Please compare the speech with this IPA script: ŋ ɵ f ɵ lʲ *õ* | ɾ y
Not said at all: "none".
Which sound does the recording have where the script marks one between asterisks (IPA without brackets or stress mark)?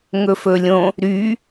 õ